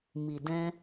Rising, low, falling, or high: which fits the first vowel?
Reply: low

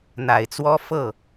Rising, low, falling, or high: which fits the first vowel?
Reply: low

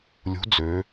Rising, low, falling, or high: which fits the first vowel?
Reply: rising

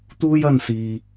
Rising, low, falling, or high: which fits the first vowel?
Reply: high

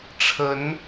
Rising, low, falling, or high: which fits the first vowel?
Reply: rising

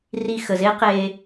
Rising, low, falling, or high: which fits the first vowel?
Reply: low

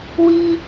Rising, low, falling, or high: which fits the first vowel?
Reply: high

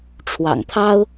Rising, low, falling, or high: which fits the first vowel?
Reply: low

